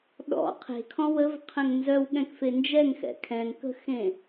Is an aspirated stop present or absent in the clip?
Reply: present